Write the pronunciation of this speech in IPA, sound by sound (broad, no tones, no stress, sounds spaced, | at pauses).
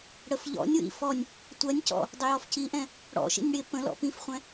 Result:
ɽ ə f ʎ ɔ̰ nʲ w ḭ f ɔ nʲ | tʷ ɜ nʲ c ɔ̰ | dˤ ɪ j ɔ f c i ʔ ɛ̃ | ɽ ɔ̰ ʃ ḭ nʲ ɽ ɪ p ə̃ l ɔ̰ p ĩ f χʷ ɛ̃